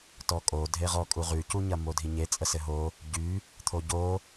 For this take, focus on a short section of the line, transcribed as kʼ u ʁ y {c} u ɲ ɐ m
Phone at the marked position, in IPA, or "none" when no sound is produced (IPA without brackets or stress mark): c